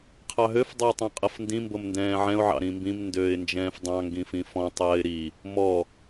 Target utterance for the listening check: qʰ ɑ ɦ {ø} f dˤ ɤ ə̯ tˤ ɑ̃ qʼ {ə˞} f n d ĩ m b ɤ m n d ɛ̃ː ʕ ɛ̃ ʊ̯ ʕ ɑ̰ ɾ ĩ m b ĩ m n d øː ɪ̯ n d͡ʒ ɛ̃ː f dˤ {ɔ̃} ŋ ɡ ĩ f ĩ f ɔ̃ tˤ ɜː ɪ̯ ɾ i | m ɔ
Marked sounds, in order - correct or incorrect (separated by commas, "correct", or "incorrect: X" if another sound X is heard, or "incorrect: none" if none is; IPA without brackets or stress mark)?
correct, incorrect: ɤ, incorrect: ɑ̃